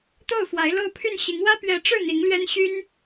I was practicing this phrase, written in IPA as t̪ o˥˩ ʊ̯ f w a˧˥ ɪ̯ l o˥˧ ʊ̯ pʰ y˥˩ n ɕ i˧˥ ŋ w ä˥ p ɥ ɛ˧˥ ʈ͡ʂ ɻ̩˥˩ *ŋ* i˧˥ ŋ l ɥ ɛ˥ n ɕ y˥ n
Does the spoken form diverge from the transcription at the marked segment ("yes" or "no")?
yes